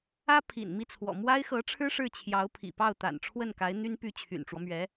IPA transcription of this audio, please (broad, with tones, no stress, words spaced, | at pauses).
ä˥pʰḭ˨˩nmi˥˩t͡sʰwɔ̰˨˩ mwa˥ɪ̯xɤ˧˥ʈ͡ʂʰɻ̩˥ ʂɻ̩˥˩t͡ɕʰjɑ˧˥ʊ̯pʰḭ˨˩ pɑ˥˩ʊ̯t̪a̰˨˩nʈ͡ʂʰwə˥˩nka˧˥ɪ̯ n̪y˥npy˥˩ t͡ɕʰy̰˨˩nʈ͡ʂwɔ˦mɥɛ˧˥